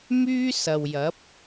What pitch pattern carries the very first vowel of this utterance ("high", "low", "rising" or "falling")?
high